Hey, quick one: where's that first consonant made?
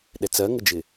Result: tongue tip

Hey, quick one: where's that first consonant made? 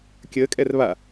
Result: velum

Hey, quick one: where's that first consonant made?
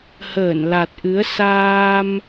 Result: throat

